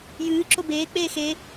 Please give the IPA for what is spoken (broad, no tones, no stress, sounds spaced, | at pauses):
j ɨː ǁ o b eː k͡p eː x e